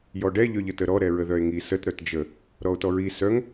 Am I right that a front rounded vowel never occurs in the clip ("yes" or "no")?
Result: no